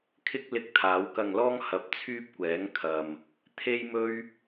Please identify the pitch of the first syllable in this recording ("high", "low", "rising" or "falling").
high